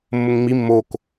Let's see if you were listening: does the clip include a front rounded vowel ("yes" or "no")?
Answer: no